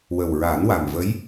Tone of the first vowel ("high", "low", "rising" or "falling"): low